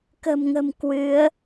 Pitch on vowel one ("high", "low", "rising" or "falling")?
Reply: low